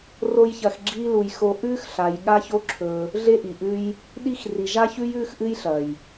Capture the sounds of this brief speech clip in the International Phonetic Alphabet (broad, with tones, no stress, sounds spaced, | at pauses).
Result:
r o˦ j ç ɐ˧ x ɡ͡ǁ iː˦ l u˧ j x o˧ ʔ ʉː˦ x ɬ a˨ j ɠ a˦ ç o˦ ǁʰ ɵ˧ | ɮ e˦ ʔ i˨ ʔ ʉ˦ j | ɗ i˦ x r i˨ ʒ a˦ ç ʉ˦ j ʉː˦ x ʔ ɨ˦ j ɬ ɐ˨ j